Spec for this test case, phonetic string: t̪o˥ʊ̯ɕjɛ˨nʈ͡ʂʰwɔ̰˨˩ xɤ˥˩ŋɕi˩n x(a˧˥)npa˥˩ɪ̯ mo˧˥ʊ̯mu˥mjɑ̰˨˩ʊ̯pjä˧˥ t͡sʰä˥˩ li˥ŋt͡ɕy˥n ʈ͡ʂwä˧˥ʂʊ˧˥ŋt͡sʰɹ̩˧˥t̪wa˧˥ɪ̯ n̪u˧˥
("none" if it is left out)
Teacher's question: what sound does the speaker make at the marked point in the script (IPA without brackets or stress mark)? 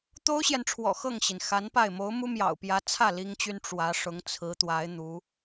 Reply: a˧˥